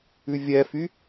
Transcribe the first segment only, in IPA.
ʉ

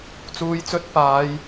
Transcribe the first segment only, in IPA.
t͡s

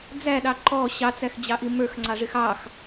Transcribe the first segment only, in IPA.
d͡z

